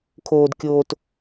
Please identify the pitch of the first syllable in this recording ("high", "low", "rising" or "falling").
low